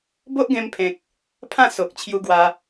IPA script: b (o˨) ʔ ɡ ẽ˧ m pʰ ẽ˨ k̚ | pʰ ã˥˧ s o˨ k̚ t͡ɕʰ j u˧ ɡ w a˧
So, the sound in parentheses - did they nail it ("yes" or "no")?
no